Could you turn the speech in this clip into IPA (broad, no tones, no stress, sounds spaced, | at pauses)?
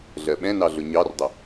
ɮ ɜ ɓ ɛ̃ n ɑ ɮ ʊ ɲ ɑ r dˤ ɪ